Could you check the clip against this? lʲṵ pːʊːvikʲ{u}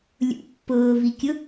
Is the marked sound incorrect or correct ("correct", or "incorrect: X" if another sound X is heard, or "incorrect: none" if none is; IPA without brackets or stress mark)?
incorrect: ʊ